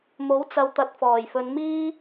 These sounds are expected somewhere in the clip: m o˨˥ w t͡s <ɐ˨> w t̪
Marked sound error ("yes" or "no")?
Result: no